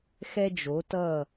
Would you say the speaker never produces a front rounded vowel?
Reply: yes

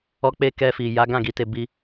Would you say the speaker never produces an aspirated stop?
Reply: yes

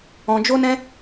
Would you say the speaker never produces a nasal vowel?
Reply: no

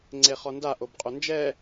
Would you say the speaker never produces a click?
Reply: no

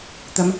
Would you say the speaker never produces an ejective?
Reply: yes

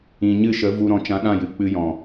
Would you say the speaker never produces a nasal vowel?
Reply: no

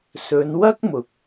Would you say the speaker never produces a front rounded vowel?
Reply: yes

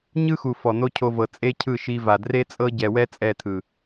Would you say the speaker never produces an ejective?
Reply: no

